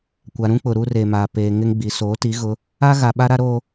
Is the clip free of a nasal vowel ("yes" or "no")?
no